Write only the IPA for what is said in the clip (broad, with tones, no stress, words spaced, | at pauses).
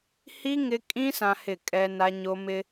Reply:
hi˦ ŋɪ˦ kʼĩ˦ sã˦hɪ˦˨ kʼɛ˦na˦ɲo˦ mɪ˦